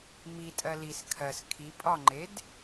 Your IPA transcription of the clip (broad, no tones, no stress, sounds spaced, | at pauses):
m i tʼ ɜ l i s kʰ ɜ s kʰ i pʼ ɒ ŋ͡ǃ e d